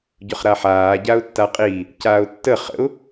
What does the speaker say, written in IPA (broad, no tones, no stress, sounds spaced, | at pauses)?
ɟ ʊ χ ɾ a ħ aː ɟ a ʊ̯ tː a qʼ iː | c aː ʊ̯ tː ə χ ə̰ ʊ̯